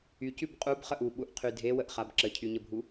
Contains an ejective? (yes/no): yes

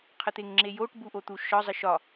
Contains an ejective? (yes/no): no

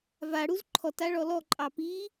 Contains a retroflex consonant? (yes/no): yes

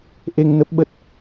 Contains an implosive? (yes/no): yes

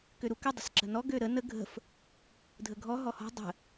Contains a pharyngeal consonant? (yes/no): no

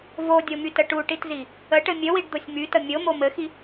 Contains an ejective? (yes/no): no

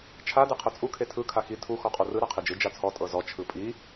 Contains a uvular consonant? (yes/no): yes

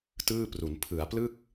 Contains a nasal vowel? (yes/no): no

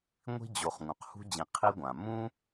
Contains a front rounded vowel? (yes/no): no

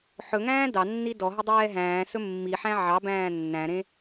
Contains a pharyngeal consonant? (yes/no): yes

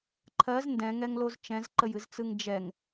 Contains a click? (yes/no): yes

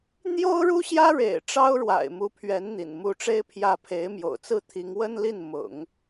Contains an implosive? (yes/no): no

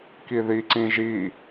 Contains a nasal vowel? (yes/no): yes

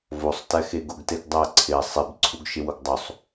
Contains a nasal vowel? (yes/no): no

